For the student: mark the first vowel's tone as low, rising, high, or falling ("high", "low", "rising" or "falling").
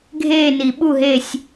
falling